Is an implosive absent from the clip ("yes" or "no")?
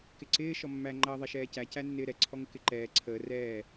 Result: yes